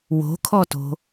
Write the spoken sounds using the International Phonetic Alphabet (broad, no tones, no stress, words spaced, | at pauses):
wo̤kʰɔto̤